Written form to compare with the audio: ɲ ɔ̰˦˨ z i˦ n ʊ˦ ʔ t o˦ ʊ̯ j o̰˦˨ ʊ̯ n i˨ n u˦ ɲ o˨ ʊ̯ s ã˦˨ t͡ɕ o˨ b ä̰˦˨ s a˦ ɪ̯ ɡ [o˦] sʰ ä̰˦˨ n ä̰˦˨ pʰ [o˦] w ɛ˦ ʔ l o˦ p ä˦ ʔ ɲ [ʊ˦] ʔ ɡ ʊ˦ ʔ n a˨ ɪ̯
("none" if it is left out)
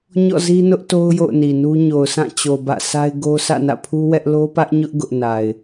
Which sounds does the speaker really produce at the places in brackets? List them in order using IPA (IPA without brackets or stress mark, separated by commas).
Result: o˦, u˦, ʊ˦